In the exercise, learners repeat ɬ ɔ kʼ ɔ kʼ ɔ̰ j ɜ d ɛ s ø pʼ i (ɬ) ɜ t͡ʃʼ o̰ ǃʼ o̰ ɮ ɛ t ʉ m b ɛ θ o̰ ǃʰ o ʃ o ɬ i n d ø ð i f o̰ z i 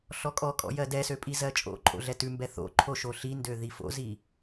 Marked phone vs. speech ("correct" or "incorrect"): incorrect